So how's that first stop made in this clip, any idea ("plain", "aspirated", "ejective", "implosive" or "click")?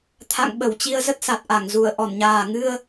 aspirated